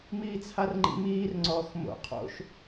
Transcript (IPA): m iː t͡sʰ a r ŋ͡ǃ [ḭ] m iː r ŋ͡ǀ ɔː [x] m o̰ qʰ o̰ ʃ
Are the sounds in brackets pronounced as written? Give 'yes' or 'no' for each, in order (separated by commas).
yes, yes